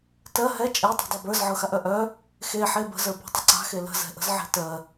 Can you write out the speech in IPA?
t ɜ ɦ ɛ t͡ʃʼ e tˤ ɛ̤ dˤ a b ə˞ z ʕ ɤ x a ʔ œ ʔ œ | x e ħ e b ə̤ z ə˞ b ɔ̤ tˤ ə ǀ a̤ x e l ə̤ z ɛ̤ ʔ ə̤ z ʕ e̤ t ɜ

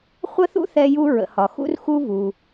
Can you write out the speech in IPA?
χʷ ə˥ θ ṵ˥ θ ɛ˥ j u˥ ɹ ə̰˩ h ɒ˩ x ṵ˥ r x u˥ v u˩

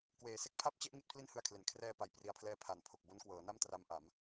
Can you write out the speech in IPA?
k w eː˩˦ s e˦˥ k̚ pʰ a˥˩ p̚ t͡ɕ e˥˩ ʔ ŋ i˦˥ t̚ pʰ l i˥˩ n h ɯ˧ a̯ kʰ l e˩˦ n kʰ r ɛː˧ p a˨˩ j p r i˨˩ a̯ pʰ l ɛː˧ pʰ a˨˩ n pʰ o˨˩ k̚ b o˦˥ n k w ɤː˩˦ n a˥˩ m t r a˦˥ m ʔ a˩˦ m

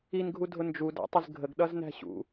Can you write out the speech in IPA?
i n ɡʱ u dʱ ʊ n d͡ʒ u d æ̰ tˤ ɪ z ɡʱ ə ɡ ɗ ʌ z n æ̤ ɕ ṵ

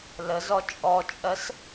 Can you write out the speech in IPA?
l ə z ɔ t͡ʃʼ ɔ t͡ʃʼ ɜ s

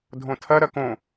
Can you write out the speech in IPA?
dʱ õ tʰ ɐ ɾ ɐ k õ

